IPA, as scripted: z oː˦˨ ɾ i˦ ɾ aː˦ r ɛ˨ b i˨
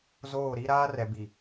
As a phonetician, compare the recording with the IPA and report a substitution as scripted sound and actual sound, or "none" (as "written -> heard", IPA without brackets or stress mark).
none